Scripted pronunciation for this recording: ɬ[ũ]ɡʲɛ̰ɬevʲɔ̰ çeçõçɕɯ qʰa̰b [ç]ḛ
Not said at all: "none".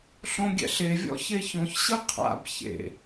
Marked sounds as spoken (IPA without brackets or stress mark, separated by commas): õ, ç